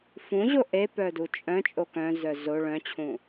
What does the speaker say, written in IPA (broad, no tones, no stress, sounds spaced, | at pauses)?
f ũ ʑ o ʔ e p œ d u t͡ʃʼ œ̃ t͡ʃʼ o k œ̃ z œ z o ɭ œ̃ t͡ɕʰ ũ